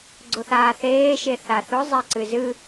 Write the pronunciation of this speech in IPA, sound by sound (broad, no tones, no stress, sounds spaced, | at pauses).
ɡ͡ǀ ʊ θ aː θ eː ʃ e θ a θ ʊ zˤ e ǀ ɨ z ɨ